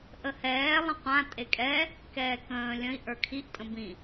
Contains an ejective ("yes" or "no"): yes